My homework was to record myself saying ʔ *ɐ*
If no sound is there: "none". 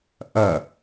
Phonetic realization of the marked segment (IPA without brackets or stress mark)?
ɐ